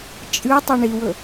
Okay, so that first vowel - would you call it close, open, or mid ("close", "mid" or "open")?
close